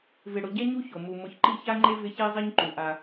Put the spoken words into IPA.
vɪ˨ɽʊ˨ ɟɛ˦ɲu˦ ço˨ mu˨ mʊ˨çǃi˦˨ça˦ŋ͡ǃe˦ vɪ˦çe˦zˤi˦ɲǃu˨ ʔa˦

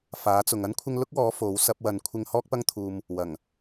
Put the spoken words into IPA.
faː˨˥t͡sʊ˨ŋ ɐ˥nkʷʰɪ˧ŋ lʊ˥k̚wɔː˨˥ fo˨˥w sɐ˧p̚wɐ˨˧nkʷʰɪ˧ŋ hɔː˥k̚pɐ˥ŋt̪ʰuː˧m | wɐ˨˩ŋ

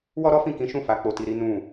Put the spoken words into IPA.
wɔ˦ ɾɔ˦fĩ˦˨kĩ˨˦ʃũ˦˨ fa˨˦k͡po˧ti˧ɾi˦ nũ˦˨

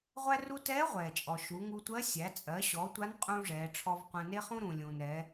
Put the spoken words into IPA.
ʁʷæ˥ru˥ tɛː˧˥ ʁʷɛː˩t͡ʃʼɔ˩ ʃu˩˧ ŋu˧tʷɜ˧˥ sʲæ˩˧t͡sʼɜ˩˧ɕɔ˩˧ tʷa˧˥nqʼũː˧ ʐɛː˩˧ʈ͡ʂʰɔ˧vqʷæ̃˧ ne˥χũ˥ ɾũː˩lʲũː˩nɾɛː˩˧

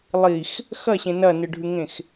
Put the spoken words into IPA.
lˠix | xɐɕẽ nɐnɨɖʱʉŋẽx

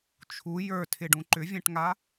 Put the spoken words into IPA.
t͡ʃʰu jə˞tʰɪɖũ ǃʏvʲɛ̃ʈŋa

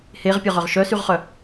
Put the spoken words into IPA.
heʁpʲɔʁœʁ ʃœsyʁχœ

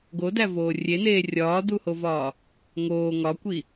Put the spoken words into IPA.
ɡodævoː rʲeneː rʲɒːduhovɒː | ŋoː ŋɒkʷi

